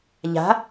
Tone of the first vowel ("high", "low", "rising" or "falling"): rising